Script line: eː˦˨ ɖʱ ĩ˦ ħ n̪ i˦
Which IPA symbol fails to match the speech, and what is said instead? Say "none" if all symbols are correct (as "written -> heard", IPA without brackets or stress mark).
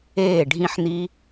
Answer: none